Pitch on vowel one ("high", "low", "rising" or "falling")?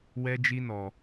high